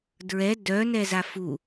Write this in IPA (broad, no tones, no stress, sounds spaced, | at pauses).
d ɹ ɛ d œ n ɛ z a f u